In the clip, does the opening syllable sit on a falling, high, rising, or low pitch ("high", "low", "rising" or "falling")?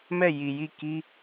falling